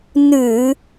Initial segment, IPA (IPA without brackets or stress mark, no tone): n